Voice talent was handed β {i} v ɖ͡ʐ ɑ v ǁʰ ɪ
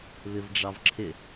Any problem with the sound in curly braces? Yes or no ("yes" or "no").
yes